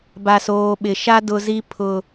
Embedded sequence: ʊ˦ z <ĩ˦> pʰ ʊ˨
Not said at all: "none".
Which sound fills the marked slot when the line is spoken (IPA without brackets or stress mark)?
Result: i˦